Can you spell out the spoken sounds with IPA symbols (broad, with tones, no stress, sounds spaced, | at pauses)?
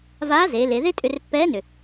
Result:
v aː˧˥ z eː˩˧ l e˩˧ ð e˥ tʼ ʏ˧ r pː ɛː˧˥ n ʏ˩